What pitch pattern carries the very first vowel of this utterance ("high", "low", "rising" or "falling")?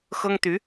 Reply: high